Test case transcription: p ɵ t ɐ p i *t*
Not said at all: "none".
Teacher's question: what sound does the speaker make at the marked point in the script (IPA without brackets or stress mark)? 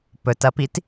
t